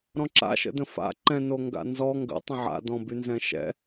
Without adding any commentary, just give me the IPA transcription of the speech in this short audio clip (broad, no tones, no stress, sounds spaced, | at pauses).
ɾ ɔ̃ ǁ a̰ ʃ ə̰ d ə̃ f a̰ ǃ ɛ̃ n o ŋ ɡ a̰ n z ɔ ŋ ɡ ə̰ tˤ ə̃ ʕ a̰ d ɔ̃ b y n z ɛ̃ ʃ ɛ̰